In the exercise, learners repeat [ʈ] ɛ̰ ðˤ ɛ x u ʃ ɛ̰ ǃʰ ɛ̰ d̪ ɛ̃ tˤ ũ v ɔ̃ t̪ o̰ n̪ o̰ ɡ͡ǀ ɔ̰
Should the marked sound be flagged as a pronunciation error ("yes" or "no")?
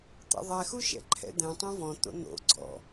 yes